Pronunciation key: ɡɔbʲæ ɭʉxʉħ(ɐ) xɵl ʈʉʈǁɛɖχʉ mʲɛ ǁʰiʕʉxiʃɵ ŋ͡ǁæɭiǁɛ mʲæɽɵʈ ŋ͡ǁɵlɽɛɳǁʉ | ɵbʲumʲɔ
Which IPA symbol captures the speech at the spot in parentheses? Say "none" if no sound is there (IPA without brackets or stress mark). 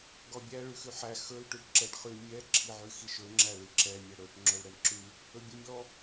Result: æ